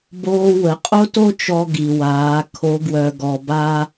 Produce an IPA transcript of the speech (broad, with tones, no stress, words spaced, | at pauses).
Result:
boː˧ wə˩˧qʼo˥to˥t͡ʃɔ˧ ɡi˩waː˩˧ kʰo˧˥ɡwœ˧ɡɔ˧ba˥